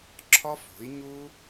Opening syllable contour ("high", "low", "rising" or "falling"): high